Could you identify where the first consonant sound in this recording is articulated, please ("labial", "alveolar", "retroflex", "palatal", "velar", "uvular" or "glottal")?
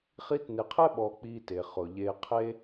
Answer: uvular